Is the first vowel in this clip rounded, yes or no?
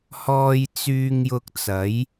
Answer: yes